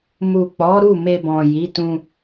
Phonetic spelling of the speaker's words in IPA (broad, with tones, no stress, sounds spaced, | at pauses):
m u˨ k͡p ɔ˨˦ ɾ u˦˨ m e˧ b ɔ̃˨ j i˨˦ t ũ˧